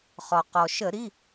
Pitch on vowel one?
low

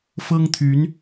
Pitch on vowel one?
high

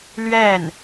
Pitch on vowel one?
falling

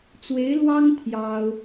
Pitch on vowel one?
rising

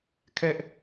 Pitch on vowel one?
high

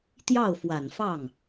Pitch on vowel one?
falling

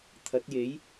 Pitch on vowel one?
rising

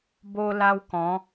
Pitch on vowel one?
high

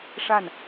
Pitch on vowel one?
falling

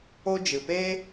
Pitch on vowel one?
high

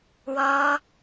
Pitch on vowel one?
high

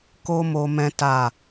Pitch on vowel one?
high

